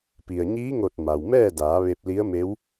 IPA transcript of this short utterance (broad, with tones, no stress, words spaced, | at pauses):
pi˩ə̯ɲiː˧˥ŋo˧˩t̚ ma˩wmɛː˥˨daː˩˧ ʋe˧p̚ li˧˥ə̯me˧˥w